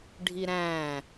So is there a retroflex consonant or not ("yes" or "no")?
yes